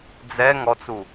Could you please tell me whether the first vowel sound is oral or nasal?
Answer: oral